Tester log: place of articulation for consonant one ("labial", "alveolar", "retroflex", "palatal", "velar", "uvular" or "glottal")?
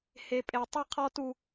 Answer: glottal